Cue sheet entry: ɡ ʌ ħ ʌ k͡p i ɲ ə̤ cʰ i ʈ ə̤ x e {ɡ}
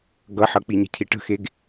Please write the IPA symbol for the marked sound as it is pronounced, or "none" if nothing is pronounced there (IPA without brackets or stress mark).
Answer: ɡ